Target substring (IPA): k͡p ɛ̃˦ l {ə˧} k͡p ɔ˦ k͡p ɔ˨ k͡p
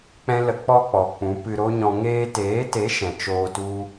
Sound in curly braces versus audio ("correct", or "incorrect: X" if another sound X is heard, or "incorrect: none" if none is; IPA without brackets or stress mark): correct